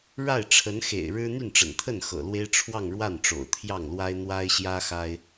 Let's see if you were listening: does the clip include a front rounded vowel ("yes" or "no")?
yes